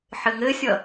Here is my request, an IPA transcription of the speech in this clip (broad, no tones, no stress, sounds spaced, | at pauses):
ħ ɘ ŋ ɘ sʲ ʌ